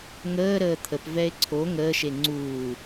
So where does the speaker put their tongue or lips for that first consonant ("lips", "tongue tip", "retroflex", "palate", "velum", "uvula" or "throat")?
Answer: velum